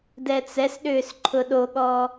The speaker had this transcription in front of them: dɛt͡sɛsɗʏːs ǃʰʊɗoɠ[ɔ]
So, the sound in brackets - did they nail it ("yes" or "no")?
yes